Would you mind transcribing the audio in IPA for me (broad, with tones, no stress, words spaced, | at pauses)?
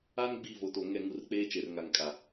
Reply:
a˦n ɡ͡bi˦˨vo˨to˨ ŋɛ˦˨ŋu˦˨r k͡peː˦t͡ʃe˨rŋa˨ŋ kʼa˨